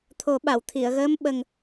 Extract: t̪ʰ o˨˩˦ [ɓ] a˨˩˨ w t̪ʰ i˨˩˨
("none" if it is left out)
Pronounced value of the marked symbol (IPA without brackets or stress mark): ɓ